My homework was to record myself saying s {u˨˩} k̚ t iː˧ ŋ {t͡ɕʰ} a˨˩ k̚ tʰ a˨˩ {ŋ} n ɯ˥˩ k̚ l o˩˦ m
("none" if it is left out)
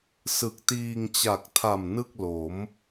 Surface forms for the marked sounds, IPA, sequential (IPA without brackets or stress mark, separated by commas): ɯ˨˩, t͡ɕ, m